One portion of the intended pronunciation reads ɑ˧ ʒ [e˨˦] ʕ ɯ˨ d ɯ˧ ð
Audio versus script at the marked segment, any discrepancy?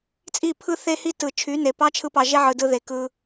yes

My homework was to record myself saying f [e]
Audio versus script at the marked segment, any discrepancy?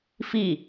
yes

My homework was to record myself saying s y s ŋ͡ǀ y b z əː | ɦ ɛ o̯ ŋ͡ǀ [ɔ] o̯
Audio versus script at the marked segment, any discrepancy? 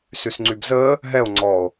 no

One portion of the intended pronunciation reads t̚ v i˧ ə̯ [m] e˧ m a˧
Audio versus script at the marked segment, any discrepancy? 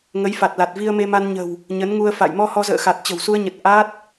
no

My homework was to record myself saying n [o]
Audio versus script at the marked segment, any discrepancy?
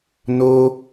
no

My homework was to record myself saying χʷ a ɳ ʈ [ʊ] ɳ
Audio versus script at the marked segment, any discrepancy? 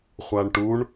yes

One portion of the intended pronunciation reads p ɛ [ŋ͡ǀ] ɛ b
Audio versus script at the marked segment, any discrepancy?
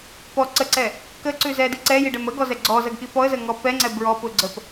no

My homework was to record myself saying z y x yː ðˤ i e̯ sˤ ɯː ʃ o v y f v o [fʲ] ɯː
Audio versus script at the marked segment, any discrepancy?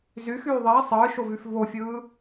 no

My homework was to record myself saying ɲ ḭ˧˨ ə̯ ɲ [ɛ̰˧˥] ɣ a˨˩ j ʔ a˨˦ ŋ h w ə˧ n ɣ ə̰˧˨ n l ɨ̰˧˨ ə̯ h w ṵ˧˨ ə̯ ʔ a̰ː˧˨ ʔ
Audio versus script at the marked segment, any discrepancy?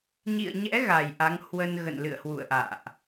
no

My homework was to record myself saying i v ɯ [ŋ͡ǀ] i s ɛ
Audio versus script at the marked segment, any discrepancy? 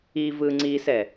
no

